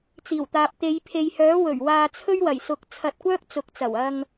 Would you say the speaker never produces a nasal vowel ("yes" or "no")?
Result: yes